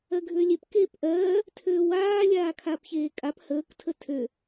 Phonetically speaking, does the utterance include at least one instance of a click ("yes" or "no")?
no